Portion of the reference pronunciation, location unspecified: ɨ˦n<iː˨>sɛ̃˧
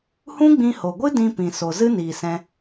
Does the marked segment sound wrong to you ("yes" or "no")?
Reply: no